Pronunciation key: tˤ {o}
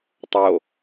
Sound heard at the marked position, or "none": o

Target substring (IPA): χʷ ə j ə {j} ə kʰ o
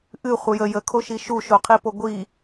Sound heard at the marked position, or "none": j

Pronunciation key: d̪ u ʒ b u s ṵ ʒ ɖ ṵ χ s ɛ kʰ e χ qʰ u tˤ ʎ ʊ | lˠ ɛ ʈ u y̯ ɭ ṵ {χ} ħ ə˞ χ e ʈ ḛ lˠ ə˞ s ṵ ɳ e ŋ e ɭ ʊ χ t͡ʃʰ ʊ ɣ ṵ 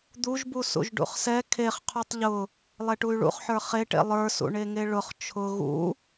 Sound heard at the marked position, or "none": χ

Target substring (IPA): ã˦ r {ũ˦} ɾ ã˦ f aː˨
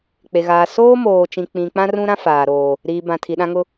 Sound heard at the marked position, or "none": ũ˦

